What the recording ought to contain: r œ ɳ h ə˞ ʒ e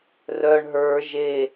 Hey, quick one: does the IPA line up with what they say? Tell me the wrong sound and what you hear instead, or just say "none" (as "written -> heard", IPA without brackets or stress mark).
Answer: h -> ɦ